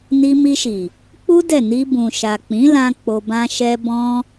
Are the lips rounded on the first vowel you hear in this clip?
no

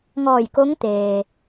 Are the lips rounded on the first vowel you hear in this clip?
yes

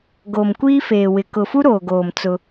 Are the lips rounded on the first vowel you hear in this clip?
yes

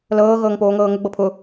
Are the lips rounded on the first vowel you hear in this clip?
no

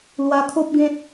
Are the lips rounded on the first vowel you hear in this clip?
no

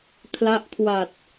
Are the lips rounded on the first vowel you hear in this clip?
no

